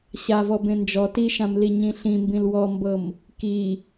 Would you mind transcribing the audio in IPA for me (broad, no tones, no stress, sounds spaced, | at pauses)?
ɕ a v ɔ b ẽ n d͡ʒ ɔ t i ʃ ã m l i ɲ ĩ ɬ ĩ m b ĩ l w ɔ m b ɤ m | k i